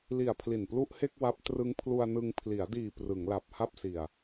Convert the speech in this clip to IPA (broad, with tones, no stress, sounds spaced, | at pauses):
l i˨˩ a̯ pʰ l i˨˩ n p l u˥˩ ʔ h e˥˩ k̚ w a˦˥ p̚ t r ɯ˦˥ ŋ pʰ l u˧ a̯ n ɯ˧ ŋ pʰ l i˩˦ a̯ d iː˨˩ p r ɯ˩˦ ŋ l a˨˩ p̚ h a˥˩ p̚ s i˨˩ a̯